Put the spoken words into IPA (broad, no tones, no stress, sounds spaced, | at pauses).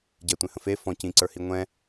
ɟ ɛ tʷ ẽ h ə̃ f e f ɔ̃ c ĩ ǀ ə˞ h i ŋʷ ɛ̃